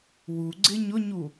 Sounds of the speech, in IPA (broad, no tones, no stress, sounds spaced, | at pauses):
w u ɡ͡ǀ ɪ ɲ ʊ ɲ u